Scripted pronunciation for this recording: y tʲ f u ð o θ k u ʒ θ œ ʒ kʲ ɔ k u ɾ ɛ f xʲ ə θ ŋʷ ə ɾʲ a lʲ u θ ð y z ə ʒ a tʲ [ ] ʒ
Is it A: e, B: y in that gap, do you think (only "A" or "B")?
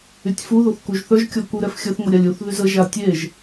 A